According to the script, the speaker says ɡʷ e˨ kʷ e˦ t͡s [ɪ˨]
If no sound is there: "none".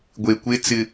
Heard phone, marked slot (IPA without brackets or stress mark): ɪ˨